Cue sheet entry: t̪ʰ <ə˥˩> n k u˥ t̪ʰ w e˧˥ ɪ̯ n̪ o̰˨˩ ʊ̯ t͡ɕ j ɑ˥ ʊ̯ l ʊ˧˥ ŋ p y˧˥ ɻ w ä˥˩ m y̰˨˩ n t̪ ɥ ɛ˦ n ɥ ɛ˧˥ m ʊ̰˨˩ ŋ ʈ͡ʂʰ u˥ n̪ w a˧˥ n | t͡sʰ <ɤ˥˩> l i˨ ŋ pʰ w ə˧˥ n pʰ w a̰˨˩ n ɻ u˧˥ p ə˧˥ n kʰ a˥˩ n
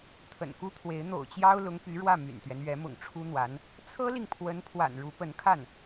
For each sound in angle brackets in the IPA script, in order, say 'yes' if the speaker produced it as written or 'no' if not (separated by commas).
no, no